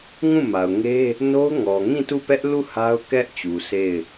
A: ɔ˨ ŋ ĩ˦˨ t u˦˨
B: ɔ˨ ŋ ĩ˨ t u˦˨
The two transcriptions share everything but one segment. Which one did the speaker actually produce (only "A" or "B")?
A